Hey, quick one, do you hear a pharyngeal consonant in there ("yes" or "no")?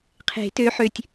yes